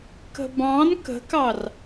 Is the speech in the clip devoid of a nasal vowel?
no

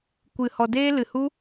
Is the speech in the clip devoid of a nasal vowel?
yes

